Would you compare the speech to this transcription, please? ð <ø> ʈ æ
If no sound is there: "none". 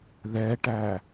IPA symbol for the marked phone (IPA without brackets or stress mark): ɛ